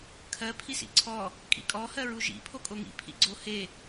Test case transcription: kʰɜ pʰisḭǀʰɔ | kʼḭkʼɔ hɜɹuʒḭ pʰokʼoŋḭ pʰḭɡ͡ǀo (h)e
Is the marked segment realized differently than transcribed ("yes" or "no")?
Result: no